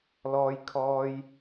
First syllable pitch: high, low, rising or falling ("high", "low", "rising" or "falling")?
high